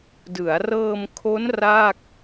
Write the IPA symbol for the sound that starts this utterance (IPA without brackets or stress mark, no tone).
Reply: d